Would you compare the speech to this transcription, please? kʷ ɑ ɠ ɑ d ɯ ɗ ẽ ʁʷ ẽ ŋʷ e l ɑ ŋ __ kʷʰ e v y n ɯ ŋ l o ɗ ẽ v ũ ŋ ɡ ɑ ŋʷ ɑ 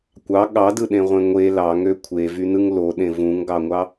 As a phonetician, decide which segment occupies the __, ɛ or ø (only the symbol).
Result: ø